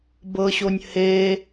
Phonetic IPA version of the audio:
b ɤ ɕ o nʲ h e

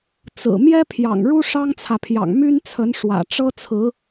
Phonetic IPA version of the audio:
t͡s ɹ̩˨˩ m j ɛ˥ pʰ j ɑ̰˨˩ ŋ ɻ u˥ ʂ ɑ˥ ŋ t͡sʰ ä˨ pʰ j ɑ̰˨˩ ŋ m y˥ n t͡sʰ ə˧˥ n ʂ w ä̰˨˩ ʈ͡ʂ ɤ˥ t͡sʰ ɹ̩˧˥

